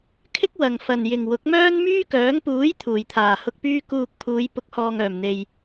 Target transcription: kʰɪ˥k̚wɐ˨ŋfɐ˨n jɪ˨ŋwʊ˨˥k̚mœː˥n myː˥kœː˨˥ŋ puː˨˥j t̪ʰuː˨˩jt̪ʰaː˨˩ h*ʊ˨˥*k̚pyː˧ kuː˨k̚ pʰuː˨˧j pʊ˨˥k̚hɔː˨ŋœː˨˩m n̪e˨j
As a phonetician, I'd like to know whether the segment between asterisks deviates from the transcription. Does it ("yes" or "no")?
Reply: yes